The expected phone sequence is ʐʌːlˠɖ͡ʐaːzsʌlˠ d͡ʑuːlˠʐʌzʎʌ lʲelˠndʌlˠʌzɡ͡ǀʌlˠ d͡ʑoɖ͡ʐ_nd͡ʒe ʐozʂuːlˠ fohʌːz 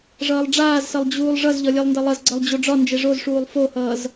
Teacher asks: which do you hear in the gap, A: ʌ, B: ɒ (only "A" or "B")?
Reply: B